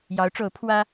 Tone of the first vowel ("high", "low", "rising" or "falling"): rising